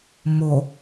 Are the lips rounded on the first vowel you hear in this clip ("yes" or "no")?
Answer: yes